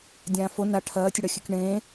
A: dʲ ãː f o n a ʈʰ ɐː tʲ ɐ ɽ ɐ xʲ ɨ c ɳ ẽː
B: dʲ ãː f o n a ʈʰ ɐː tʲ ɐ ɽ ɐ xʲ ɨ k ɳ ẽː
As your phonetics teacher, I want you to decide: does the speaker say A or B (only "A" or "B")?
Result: B